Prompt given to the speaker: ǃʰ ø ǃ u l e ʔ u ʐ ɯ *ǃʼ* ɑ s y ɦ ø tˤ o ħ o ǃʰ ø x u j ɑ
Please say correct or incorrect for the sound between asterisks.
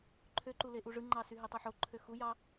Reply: incorrect